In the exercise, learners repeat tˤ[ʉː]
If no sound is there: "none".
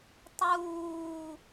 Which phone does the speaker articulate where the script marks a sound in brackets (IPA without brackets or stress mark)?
uː